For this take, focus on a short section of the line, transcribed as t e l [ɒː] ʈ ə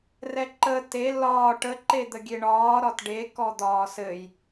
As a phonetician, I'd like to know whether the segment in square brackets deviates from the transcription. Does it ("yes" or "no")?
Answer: no